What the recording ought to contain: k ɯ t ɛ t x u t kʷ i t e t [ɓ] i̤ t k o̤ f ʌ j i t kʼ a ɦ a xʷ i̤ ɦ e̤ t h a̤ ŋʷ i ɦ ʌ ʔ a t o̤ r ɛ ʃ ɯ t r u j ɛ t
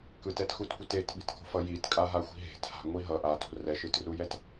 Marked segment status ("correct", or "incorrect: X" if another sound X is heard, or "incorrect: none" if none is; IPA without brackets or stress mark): correct